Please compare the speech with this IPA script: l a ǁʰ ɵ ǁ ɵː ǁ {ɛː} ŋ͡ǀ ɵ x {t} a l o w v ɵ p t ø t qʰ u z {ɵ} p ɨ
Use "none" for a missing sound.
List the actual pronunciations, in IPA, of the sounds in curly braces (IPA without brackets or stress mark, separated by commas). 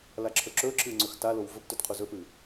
ɨː, t, ɵ